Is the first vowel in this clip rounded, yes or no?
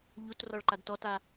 yes